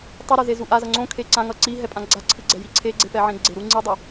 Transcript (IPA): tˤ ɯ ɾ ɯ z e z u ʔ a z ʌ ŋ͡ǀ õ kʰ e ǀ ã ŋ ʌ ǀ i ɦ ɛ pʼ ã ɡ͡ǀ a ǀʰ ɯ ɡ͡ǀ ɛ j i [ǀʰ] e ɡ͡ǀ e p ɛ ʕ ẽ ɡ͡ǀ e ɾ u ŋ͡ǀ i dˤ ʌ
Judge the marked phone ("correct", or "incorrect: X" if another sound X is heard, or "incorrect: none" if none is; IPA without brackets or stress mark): correct